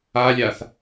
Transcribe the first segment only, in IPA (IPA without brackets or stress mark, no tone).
a